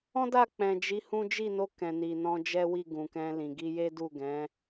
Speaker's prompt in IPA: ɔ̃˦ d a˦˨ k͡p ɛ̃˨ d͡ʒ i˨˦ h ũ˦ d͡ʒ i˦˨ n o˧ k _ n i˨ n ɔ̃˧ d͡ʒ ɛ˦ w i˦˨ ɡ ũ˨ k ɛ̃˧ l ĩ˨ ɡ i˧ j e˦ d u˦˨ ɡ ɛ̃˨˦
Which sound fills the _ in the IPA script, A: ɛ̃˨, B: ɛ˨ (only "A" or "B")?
A